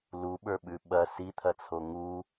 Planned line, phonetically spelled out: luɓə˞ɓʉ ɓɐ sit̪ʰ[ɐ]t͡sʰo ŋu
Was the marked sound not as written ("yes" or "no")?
no